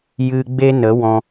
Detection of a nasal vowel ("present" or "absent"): present